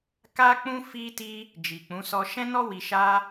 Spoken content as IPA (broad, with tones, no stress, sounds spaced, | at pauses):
k a˦ k͡p ũ˦ f i˦ t i˦ | d͡ʒ i˨ k͡p ũ˨˦ s ɔ˧ ʃ ɛ̃˦ n ɔ˦ w i˧ ʃ a˦